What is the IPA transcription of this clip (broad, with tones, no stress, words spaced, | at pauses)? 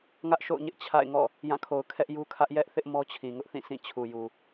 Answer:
ŋä˦ʔ ʃo̰˦˨ʊ̯ɲɪ˦ʔ t͡ɕʰa̰˦˨ɪ̯ŋɔ̰˦˨ | jã˦˨kʰo˨ʊ̯ kʰɛ˦ʔju˦kʰä˦ʔ jɛ˦ʔθɪ˦ʔ mɔ˦t͡ɕʰĩ˨ŋʊ˦ʔθĩ˦˨ sʰĩ˦˨ t͡ɕʰu˨ju˨